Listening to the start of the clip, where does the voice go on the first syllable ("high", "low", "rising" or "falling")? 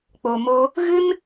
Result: low